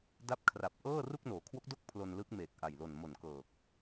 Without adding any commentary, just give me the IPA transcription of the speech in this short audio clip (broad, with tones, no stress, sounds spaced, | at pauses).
d a˦˥ p̚ kʰ r a˨˩ p̚ ʔ ɤː˥˩ r u˥˩ k̚ n oː˩˦ kʰ w o˦˥ k̚ d o˥˩ k̚ pʰ l o˧ n l ɯ˦˥ k̚ m eː˨˩ k̚ ʔ a˨˩ j l o˨˩ n m o˨˩ n k ɤː˨˩ k̚